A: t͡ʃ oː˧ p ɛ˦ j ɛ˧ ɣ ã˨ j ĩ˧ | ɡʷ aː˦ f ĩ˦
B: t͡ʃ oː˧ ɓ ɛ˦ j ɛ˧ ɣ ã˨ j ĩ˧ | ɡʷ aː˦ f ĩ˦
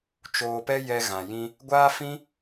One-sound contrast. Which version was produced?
A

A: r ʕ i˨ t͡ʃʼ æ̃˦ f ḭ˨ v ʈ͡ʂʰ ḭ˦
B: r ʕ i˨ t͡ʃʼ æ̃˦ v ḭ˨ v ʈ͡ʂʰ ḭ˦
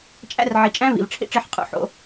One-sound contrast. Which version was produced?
B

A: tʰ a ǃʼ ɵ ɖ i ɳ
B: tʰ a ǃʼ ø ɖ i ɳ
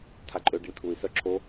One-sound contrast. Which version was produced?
B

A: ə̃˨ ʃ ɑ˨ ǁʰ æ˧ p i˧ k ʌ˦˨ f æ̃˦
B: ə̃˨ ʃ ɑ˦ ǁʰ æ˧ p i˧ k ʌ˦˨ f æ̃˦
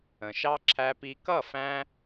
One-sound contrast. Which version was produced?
B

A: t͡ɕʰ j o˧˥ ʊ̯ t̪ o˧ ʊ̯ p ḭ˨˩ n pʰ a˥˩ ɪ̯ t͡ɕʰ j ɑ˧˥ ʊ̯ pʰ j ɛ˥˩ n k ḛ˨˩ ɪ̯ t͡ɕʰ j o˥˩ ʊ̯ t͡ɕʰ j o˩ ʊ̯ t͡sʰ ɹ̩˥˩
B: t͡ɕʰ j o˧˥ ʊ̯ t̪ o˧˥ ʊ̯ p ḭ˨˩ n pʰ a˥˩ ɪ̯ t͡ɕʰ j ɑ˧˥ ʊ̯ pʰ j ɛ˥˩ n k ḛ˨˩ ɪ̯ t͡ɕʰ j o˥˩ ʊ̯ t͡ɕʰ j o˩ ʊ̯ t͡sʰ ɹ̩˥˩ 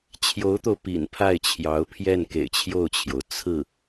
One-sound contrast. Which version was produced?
A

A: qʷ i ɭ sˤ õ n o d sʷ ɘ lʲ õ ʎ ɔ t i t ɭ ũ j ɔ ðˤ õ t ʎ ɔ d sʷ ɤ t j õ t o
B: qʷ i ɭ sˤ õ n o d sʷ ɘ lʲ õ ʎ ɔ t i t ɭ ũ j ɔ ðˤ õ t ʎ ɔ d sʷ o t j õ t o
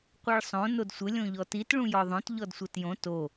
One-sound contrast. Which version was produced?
A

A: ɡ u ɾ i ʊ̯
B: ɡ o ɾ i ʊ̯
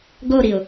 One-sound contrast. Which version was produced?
B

